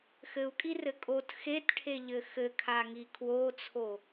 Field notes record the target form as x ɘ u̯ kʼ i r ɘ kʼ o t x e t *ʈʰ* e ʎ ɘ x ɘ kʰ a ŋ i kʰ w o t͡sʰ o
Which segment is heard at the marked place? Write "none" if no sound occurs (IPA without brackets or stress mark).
ʈʰ